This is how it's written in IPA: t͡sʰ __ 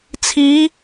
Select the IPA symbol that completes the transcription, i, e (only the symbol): i